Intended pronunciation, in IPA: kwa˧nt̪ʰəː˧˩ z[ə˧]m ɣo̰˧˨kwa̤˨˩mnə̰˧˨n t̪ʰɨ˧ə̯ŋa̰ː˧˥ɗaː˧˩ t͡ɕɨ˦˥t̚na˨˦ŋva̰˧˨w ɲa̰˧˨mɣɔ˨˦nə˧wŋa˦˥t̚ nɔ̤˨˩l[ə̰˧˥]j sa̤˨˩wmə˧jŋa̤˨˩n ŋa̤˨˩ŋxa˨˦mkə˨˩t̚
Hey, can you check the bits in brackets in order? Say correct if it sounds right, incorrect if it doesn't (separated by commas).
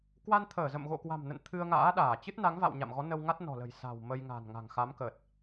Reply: incorrect, incorrect